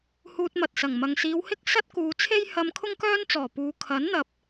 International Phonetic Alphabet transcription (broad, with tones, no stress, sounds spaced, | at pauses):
h uː˧ t̚ m ɐ˨ t̚ s ɐ˨˩ ŋ m ɐ˨ ŋ s iː˨˧ w h ɪ˥ k̚ s ɐ˥ t̚ k uː˨˧ t͡sʰ e˥ j h ɐ˧ m kʰ ʊ˥ ŋ k œː˥ n t͡s ɔː˨˩ p uː˨ kʰ ɐ˨˥ n n̪ ɐ˨ p̚